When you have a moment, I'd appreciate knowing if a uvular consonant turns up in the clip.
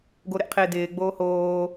yes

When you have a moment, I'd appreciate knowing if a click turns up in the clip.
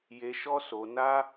no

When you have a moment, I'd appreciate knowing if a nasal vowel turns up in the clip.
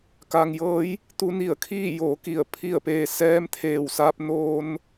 no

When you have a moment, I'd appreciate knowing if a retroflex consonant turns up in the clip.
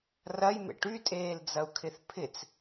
yes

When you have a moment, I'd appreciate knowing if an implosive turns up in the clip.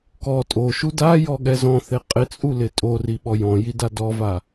yes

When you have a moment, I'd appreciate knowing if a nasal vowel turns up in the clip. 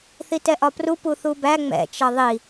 no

